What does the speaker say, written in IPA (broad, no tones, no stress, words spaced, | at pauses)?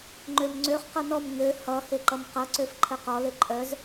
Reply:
ŋ͡ǃømŋ͡ǀøχ qʌnɔm ŋø hʌ heǃʌmqʌ ǀøfǃʰəqɔ leǃʼœz